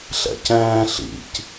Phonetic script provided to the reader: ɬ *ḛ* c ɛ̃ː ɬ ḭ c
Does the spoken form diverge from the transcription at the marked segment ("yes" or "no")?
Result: yes